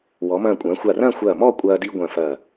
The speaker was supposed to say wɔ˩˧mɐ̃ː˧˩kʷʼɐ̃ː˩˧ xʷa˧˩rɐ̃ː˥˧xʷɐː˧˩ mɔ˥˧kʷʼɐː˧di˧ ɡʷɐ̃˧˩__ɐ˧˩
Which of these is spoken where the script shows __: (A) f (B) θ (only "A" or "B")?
A